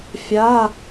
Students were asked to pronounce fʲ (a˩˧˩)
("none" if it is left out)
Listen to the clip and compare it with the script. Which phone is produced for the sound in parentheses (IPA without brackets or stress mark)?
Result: a˩˧˩